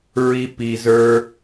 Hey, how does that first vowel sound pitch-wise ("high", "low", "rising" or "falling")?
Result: high